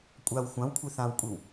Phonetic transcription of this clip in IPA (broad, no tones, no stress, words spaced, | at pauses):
kʷʼaw xʷãwkʷʰi θãwkʷʼiw